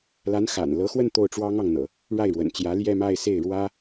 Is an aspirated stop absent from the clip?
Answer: yes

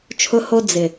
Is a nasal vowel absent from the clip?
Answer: yes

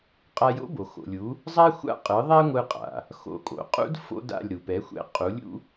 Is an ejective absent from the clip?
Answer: no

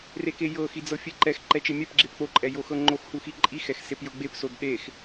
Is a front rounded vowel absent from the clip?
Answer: yes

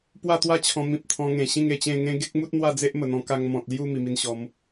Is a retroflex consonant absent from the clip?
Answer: yes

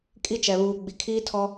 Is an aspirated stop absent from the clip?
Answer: no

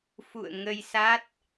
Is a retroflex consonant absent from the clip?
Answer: yes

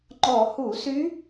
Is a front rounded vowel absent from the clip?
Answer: no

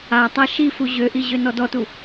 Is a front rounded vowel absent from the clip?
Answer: no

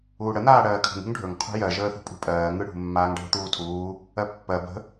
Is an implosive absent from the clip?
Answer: yes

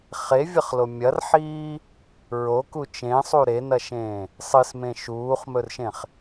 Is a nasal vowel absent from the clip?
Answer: no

